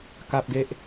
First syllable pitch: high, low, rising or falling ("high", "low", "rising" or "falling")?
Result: high